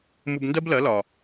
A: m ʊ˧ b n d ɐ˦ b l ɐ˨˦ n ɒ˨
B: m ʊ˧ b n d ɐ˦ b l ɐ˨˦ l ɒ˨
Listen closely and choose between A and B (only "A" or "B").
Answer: B